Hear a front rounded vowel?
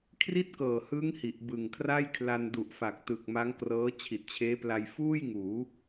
no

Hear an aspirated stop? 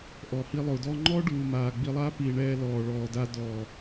no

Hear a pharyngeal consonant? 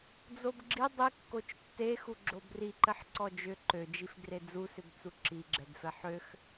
yes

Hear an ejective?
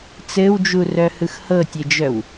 no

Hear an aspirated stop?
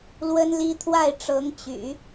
yes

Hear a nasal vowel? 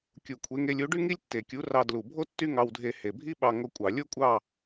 no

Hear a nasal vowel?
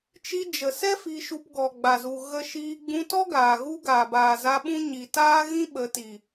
yes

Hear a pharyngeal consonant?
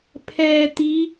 no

